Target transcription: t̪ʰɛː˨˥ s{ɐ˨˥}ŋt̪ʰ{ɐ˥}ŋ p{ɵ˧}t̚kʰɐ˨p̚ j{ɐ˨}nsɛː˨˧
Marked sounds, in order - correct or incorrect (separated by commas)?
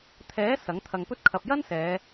correct, incorrect, correct, incorrect